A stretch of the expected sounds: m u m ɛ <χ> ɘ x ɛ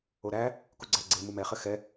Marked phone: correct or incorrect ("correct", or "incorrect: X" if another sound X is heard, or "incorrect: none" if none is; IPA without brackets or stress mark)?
correct